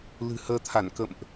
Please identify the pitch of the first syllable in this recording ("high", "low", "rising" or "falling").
low